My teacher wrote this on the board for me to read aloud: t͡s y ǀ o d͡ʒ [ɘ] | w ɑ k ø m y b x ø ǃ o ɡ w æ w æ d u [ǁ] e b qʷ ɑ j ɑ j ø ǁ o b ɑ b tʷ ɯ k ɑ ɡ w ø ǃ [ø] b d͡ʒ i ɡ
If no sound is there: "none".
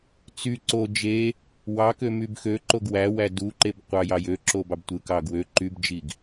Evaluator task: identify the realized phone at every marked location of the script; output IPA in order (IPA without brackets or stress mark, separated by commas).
e, ǃ, y